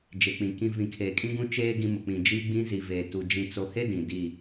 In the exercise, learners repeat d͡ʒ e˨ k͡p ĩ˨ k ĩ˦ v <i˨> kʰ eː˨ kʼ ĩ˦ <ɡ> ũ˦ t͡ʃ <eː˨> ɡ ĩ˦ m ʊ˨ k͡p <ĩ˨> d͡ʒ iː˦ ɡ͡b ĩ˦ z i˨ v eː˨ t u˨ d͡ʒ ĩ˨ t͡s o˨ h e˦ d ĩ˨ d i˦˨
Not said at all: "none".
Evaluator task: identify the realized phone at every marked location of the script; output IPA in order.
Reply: ĩ˨, ɡ, eː˦, ĩ˨

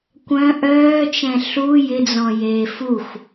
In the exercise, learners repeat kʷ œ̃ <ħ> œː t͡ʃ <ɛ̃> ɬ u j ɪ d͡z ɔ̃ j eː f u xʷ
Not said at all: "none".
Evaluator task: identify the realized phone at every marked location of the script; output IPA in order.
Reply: ʔ, ɛ̃

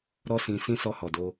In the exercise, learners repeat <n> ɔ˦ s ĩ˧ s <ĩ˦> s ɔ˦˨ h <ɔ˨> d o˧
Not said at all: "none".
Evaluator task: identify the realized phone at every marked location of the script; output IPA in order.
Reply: ɾ, ĩ˦, ɔ˨

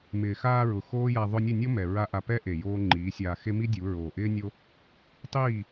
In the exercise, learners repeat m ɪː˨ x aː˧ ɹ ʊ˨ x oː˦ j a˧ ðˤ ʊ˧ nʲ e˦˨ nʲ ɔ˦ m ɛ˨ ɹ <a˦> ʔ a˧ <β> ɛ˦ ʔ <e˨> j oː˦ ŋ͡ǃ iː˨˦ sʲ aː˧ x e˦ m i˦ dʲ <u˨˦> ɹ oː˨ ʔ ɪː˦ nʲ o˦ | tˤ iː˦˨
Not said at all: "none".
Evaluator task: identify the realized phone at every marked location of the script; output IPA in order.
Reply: a˦, p, e˨, u˨˦

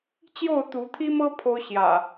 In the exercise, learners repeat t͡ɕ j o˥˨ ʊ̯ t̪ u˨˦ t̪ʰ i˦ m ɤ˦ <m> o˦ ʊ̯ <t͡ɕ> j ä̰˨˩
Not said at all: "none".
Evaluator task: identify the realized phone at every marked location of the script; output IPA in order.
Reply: pʰ, ɕ

